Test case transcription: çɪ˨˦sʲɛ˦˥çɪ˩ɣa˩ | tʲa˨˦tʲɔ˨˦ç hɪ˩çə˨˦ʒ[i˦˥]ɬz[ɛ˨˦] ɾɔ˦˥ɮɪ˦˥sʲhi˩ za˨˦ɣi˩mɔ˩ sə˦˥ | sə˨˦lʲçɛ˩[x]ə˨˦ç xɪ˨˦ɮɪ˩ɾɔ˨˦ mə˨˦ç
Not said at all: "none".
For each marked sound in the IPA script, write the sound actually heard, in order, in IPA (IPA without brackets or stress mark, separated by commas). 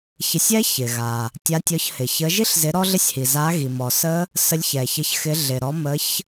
i˦˥, ɪ˨˦, ç